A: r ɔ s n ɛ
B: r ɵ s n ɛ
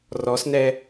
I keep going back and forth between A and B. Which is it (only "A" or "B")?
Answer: A